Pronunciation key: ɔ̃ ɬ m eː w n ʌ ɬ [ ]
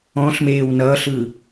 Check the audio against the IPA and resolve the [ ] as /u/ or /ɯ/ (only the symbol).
ɯ